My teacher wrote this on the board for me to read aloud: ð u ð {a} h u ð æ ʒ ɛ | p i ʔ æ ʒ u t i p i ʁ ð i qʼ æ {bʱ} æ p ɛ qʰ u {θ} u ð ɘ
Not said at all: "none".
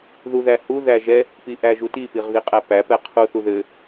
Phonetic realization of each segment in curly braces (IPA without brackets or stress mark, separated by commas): æ, p, θ